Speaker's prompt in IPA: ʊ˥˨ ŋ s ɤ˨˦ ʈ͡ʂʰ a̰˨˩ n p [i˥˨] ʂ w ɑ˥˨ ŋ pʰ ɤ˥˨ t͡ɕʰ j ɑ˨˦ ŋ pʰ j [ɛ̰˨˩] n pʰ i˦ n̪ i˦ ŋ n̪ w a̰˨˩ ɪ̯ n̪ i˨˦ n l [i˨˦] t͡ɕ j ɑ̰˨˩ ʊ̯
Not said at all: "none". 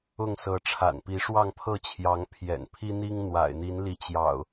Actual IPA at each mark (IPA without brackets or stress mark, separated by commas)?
i˨˦, ɛ̰˨˩, i˨˦